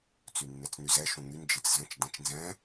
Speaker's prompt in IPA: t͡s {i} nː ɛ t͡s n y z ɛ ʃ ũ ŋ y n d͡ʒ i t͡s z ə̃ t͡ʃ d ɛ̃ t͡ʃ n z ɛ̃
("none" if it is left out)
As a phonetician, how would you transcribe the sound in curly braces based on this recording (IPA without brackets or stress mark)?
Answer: y